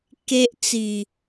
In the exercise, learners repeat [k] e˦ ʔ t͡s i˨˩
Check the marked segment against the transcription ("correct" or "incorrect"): correct